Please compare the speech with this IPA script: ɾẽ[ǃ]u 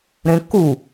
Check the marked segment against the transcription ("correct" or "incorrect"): incorrect